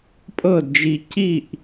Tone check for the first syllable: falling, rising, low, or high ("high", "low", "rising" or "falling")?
falling